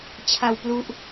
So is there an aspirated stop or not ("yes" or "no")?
yes